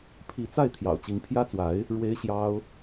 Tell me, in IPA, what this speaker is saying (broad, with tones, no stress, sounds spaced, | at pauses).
pʰ i˧˥ t͡s a˥˩ ɪ̯ t̪ʰ j ɑ̰˨˩ ʊ̯ t͡ɕ i˧˥ ŋ pʰ j ä˥ t͡s w a˧˥ ɪ̯ | ɻ w e˥ ɪ̯ ɕ j ɑ˥ ʊ̯